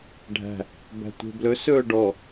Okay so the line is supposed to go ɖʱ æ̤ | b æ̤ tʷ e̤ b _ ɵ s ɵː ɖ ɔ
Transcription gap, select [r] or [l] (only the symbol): l